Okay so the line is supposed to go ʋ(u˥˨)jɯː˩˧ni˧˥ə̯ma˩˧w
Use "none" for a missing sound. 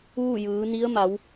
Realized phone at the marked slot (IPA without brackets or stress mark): u˥˨